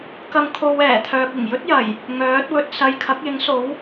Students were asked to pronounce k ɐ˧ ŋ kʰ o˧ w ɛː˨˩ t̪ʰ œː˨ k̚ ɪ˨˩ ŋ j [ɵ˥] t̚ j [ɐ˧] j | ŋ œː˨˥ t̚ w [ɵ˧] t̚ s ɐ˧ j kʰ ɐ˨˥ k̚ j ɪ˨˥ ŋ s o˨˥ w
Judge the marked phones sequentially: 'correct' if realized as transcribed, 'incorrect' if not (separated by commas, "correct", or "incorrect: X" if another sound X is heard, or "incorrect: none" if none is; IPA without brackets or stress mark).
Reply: correct, incorrect: ɐ˨˩, correct